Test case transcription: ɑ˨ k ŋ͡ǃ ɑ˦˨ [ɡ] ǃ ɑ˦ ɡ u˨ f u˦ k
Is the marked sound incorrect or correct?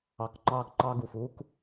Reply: correct